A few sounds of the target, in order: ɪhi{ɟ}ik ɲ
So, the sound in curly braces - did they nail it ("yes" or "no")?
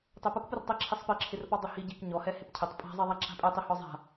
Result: yes